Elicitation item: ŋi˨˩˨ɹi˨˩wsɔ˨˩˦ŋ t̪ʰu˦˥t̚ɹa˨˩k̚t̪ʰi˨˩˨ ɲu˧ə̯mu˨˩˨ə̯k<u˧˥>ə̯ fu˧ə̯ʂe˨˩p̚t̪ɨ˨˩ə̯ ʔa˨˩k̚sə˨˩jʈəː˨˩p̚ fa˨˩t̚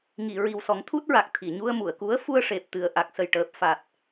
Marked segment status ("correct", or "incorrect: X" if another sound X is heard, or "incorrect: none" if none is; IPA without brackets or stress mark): correct